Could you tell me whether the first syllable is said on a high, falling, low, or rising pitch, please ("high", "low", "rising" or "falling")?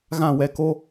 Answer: falling